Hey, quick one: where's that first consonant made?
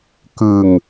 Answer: velum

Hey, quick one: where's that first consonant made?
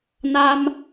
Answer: tongue tip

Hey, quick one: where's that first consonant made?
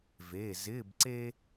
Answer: lips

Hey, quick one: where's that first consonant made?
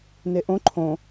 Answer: tongue tip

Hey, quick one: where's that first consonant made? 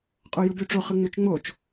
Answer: uvula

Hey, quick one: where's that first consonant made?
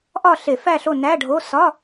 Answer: throat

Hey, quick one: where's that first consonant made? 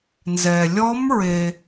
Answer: tongue tip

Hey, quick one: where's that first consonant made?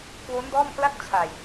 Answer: velum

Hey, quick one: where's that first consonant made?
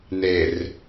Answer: tongue tip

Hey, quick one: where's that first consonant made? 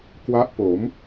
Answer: velum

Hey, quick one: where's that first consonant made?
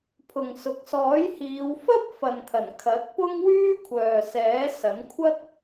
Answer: lips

